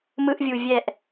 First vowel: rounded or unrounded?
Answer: unrounded